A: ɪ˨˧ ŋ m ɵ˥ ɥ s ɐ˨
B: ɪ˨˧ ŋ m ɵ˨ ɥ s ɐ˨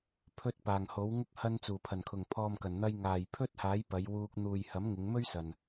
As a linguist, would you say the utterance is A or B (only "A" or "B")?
A